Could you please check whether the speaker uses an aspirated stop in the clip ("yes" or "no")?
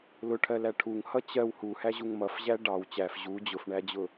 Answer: yes